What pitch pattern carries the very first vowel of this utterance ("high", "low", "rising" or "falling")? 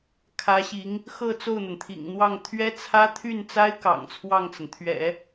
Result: rising